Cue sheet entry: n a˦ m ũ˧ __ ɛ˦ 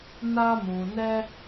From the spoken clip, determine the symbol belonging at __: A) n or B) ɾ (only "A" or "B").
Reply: A